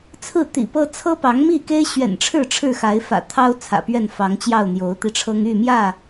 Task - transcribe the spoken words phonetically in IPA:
t͡sʰ ɹ̩˥˨ t̪ ḭ˨˩ p ɤ˦ t͡sʰ ɤ˦ p ɑ˨˦ ŋ m i˥˨ k e˦ ɪ̯ ɕ ɥ ɛ̰˨˩ n ʈ͡ʂʰ ɻ̩˥˨ ʈ͡ʂʰ ɻ̩˥˨ x a˨˦ ɪ̯ f ä̰˨˩ t̪ʰ ɑ˦ ʊ̯ t͡sʰ ä̰˨˩ p ɥ ɛ˥˨ n f ɑ˨˦ ŋ t͡ɕ j ɑ˥˨ ʊ̯ n̪ j o˨˦ ʊ̯ t̪ i˧ ʈ͡ʂʰ ɤ˦ ŋ y˥˨ m j ä˥˨

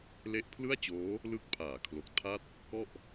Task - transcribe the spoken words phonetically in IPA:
l e˥˩ ʔ pʰ l ɯ˥˩ a̯ t͡ɕ oː˦˥ | l ɯ˦˥ k̚ pʰ aː˩˦ kʰ l o˨˩ k̚ tʰ a˥˩ t̚ | k ɔ˥˩ ʔ

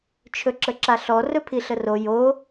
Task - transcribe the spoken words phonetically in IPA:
t͡ʃʰ ɵ ǁ ə ǁ a ɬ ɔ r ɵ pʰ i ɬ ə r o j o

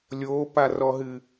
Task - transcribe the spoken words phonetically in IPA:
lʲ oː p a r ɔ ɦ ɨ

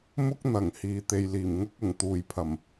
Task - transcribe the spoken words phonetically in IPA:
m ʊ˥ k̚ n̪ ɐ˨˩ ŋ h iː˨ t̪ e˨ j l iː˨˩ m ŋ ʊ˥ k̚ ʊ˨˩ ŋ t̪ uː˨ j pʰ ɐ˨˩ m

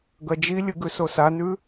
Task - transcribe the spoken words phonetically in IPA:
ɡ ɐ d͡ʒ i lʲ ɨ ɡ ʉ s o s a n ʉ

